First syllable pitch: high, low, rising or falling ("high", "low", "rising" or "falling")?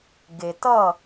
low